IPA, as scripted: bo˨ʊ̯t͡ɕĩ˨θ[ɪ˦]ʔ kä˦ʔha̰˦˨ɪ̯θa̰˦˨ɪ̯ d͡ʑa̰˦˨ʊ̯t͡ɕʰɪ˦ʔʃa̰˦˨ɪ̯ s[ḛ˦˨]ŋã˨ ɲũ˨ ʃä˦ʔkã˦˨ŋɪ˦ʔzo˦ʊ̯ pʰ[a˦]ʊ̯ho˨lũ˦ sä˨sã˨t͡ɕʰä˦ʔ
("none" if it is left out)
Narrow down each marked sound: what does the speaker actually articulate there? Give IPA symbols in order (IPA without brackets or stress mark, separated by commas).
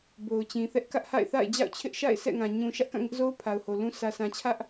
ɛ˦, ɛ̰˦˨, a˨